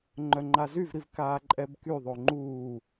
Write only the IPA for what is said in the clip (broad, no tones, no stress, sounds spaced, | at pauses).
ŋ͡ǃ œ ŋ͡ǃ a z y v ɾ i v k aː ǃʼ ɛ b k y ðˤ o ŋ͡ǃ uː